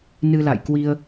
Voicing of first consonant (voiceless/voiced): voiced